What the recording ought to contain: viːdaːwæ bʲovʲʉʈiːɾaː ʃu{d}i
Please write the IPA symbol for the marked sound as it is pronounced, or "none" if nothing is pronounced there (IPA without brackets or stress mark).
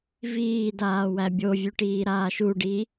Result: ɖ